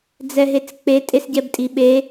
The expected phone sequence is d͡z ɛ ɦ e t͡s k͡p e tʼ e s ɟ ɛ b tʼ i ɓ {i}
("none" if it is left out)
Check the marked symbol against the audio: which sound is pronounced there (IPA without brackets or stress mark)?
e